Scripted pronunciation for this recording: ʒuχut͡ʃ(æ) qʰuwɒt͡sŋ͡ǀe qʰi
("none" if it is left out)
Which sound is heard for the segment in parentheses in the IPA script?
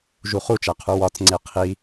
æ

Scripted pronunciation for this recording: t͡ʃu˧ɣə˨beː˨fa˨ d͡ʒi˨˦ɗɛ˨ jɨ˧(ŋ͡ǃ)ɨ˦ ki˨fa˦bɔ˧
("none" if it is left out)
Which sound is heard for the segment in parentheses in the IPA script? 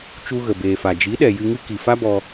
ŋ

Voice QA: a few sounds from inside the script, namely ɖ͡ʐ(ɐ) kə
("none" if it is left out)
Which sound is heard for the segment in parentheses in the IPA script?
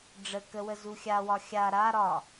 ə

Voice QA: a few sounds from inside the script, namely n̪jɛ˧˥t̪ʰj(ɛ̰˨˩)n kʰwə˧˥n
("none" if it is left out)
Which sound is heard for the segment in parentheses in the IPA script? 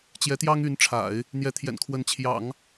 ɛ̰˨˩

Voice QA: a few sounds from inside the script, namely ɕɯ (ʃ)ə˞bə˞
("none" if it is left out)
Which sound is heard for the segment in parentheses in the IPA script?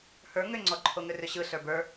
ɬ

